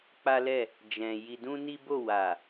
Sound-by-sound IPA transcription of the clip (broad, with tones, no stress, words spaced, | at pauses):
k͡pa˦lɛ˦˨ | d͡ʒɛ̃˧ ji˧dũ˦ni˦ bo˦˨wa˨